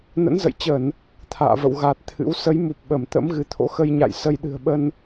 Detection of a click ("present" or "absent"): absent